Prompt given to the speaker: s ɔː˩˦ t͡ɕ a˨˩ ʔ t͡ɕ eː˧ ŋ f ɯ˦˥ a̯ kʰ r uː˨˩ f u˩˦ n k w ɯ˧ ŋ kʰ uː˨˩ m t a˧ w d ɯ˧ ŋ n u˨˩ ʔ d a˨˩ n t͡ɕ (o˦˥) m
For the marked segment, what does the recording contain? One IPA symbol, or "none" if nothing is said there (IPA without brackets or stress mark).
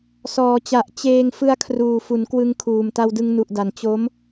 o˦˥